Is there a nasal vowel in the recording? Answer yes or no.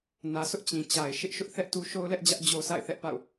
yes